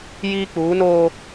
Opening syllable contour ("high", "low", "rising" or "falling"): high